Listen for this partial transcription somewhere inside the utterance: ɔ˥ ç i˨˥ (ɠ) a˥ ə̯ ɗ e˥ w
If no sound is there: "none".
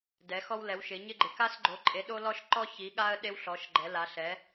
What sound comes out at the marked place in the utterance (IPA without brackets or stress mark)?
ɠ